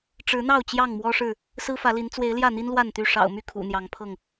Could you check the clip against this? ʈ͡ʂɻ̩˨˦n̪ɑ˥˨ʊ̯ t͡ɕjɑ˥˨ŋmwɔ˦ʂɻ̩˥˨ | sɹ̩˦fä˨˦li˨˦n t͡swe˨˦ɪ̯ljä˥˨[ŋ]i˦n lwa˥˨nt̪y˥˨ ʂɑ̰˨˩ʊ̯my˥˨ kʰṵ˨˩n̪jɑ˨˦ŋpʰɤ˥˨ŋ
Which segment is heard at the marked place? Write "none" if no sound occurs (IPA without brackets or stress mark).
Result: n̪